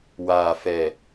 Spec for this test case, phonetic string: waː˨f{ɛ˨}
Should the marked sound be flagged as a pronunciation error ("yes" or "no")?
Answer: no